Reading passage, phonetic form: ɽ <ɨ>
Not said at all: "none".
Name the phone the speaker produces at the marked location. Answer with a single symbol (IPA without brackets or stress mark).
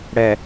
ɛ